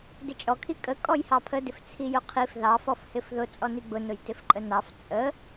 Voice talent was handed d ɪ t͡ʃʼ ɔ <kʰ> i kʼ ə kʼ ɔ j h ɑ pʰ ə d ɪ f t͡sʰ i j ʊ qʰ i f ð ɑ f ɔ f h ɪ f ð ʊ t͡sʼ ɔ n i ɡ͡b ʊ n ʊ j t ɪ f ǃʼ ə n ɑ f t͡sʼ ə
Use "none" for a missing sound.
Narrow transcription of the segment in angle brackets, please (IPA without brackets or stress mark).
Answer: kʰ